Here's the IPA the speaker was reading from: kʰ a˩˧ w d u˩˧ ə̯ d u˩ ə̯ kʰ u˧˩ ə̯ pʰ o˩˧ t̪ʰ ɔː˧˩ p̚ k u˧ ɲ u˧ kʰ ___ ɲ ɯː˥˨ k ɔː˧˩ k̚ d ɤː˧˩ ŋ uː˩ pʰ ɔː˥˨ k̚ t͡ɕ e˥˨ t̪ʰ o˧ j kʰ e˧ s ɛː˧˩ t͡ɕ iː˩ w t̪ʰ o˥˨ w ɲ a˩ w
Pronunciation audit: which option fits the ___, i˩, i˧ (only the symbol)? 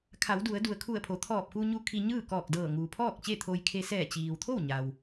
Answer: i˧